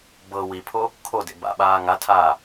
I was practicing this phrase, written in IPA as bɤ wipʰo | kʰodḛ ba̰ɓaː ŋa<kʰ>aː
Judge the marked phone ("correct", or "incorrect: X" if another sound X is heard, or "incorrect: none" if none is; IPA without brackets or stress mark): incorrect: tʰ